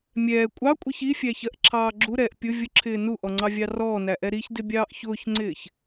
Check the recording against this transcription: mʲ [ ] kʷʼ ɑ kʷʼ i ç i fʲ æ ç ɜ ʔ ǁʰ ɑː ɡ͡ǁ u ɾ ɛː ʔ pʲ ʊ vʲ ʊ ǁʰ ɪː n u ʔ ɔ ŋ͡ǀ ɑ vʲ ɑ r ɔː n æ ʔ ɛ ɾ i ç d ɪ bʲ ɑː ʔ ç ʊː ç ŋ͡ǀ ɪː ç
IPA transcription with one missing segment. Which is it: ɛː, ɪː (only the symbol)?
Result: ɛː